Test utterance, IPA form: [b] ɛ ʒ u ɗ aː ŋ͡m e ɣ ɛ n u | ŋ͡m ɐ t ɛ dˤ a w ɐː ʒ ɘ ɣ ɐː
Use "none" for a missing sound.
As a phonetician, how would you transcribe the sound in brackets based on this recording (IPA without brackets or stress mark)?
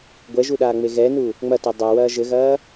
ɡʷ